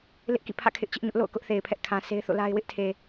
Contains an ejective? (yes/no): no